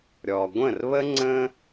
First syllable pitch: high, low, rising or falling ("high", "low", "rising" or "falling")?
low